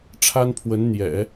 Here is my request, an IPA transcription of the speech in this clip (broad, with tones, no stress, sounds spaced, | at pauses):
ʈ͡ʂʰ a˥ n pʰ w ə˧˥ n n̪ j ɛ̰˨˩˦